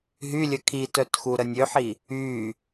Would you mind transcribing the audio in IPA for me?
ɦ y lʲ ə kʰ i t œ t x u ɾ ə nʲ ø ħ i | yː

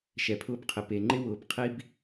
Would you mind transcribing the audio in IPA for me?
ʃ ɛ˨ pʰ ʊː˦ b qʰ ɪ˨ p e˨ ŋ͡ǃ ɪ˦ w ʊː˨ b qʰ i˦ b

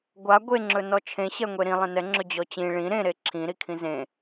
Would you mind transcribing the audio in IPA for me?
ɡʷ a ɡʷ e ŋ͡ǁ ɵ n ɔ t͡ʃʰ ẽ ɕ ɛ ŋʷ e ɾ ĩ lˠ ẽ n ɛ ŋ͡ǁ ɵ d͡ʑ ɔ t͡ɕ ĩ ɭ ĩ ɾ ẽ ɾ e ǁʰ ĩ ɾ i kʰ ĩ z ẽ

